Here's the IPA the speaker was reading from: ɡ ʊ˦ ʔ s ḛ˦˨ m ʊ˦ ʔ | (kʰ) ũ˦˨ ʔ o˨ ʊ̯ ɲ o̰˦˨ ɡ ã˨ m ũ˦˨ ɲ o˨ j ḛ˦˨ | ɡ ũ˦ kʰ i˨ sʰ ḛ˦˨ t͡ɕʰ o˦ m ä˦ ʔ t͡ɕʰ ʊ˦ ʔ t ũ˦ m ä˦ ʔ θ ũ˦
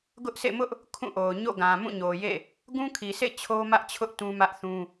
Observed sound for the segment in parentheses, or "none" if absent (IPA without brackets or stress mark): kʰ